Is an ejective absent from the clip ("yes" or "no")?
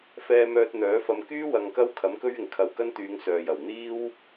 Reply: yes